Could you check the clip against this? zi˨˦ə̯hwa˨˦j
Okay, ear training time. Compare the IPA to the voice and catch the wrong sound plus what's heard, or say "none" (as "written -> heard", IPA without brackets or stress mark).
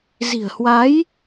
i˨˦ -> i̤˨˩